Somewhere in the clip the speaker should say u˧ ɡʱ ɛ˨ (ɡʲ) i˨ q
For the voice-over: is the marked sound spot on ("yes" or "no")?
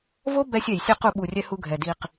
no